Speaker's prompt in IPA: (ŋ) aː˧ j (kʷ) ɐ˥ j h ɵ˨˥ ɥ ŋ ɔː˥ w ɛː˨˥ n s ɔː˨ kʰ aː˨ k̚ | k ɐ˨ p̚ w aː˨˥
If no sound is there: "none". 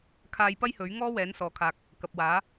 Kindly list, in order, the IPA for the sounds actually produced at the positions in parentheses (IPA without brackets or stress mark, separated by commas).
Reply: kʰ, p